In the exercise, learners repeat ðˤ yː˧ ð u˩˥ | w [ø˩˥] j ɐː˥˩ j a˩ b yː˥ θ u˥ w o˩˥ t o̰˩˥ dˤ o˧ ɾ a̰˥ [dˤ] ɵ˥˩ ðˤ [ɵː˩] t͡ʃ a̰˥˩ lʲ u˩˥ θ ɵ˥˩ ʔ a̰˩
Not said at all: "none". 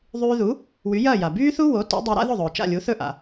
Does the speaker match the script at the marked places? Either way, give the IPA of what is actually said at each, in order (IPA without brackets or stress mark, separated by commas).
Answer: y˩˥, ð, ɵː˩